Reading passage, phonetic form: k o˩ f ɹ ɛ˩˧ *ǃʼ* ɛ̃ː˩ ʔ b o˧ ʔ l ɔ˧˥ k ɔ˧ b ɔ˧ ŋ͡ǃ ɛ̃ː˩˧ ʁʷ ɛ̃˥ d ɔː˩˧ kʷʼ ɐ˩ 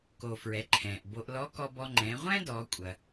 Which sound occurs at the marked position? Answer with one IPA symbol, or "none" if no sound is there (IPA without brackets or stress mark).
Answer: ǃʰ